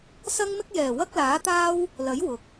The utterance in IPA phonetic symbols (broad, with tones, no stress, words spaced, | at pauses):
sɐ˥ŋmɪ˥k̚jɛː˨˩ wɐ˥k̚laː˨˥t̪aː˥w | lɐ˨˥j wʊ˨k̚